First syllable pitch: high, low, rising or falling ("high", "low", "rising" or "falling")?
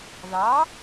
rising